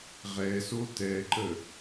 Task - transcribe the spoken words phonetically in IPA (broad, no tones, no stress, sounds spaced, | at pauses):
ʁ ɛ s o t ɛ ǃ ə